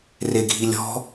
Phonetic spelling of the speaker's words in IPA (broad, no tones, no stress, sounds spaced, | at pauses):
r e ɡʱ i lʲ ɔ̤